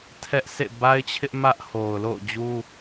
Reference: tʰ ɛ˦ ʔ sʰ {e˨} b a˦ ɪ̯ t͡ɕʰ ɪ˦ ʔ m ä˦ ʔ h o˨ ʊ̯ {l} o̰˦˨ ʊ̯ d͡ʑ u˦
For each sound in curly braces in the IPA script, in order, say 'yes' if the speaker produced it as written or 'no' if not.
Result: no, yes

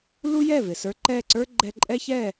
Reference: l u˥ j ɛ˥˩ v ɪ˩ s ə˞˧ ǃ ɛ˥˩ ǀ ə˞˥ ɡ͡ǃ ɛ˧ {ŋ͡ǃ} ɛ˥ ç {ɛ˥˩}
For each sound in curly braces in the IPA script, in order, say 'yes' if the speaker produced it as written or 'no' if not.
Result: no, yes

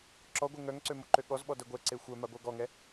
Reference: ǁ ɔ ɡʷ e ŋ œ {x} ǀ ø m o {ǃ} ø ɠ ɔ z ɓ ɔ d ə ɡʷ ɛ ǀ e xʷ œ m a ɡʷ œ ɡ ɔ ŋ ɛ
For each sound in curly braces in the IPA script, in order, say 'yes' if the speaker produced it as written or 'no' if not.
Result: no, yes

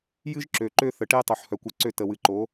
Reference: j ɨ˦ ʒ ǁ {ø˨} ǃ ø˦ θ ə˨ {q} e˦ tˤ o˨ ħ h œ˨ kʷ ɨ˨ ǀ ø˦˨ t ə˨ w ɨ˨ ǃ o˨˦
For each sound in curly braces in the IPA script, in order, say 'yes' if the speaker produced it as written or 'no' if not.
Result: yes, no

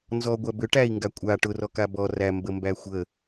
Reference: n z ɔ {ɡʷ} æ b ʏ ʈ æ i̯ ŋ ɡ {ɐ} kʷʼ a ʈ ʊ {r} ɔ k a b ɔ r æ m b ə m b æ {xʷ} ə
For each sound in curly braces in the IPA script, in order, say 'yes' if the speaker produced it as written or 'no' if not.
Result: yes, no, yes, yes

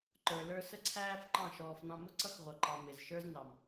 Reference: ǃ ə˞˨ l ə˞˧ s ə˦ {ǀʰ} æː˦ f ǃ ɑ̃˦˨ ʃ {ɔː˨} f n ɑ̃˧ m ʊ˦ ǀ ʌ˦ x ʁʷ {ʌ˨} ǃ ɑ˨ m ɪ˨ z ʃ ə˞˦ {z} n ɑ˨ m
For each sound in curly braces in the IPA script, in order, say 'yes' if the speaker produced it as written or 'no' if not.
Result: yes, yes, yes, yes

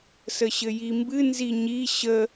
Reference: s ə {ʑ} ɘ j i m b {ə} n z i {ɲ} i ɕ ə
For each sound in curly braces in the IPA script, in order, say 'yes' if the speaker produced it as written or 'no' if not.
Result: no, no, yes

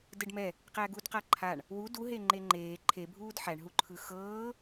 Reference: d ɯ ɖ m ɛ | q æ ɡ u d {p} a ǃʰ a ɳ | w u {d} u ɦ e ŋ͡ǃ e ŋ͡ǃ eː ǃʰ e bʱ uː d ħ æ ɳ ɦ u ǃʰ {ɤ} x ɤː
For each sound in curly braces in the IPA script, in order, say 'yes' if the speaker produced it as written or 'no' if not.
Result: no, yes, no

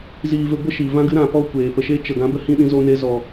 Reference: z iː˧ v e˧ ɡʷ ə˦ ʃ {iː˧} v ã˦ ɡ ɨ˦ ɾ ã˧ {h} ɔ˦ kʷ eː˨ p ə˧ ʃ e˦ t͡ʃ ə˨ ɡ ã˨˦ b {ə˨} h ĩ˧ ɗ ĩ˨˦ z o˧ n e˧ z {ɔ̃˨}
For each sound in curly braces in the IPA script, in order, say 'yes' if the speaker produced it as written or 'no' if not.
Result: no, no, no, no

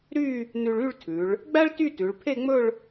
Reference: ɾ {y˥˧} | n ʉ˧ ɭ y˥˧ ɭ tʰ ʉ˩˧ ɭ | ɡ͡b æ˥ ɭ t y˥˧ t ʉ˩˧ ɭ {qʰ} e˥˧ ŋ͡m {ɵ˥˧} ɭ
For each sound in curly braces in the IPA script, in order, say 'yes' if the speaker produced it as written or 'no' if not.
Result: yes, no, yes

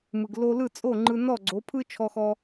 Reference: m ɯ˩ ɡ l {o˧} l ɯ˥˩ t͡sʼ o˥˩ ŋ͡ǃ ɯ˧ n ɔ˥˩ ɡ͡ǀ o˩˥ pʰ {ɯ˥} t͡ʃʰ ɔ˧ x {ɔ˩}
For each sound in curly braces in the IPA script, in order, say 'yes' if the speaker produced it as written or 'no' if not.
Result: yes, yes, no

